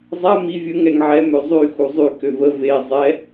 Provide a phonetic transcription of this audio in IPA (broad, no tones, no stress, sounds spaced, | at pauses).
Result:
zˤ a m i vʲ ə ŋ ɛ ŋ ʕ ɛ m ø zˤ y x u zˤ y k ø v ə v e zˤ ɛ